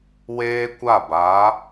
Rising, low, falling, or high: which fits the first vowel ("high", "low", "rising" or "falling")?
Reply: high